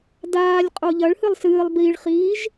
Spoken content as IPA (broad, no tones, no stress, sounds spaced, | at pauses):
d aː lʲ qʼ o ʎ ɐ ɭ h ɨ lˠ s ɨː lˠ b i ɭ χ iː ʒ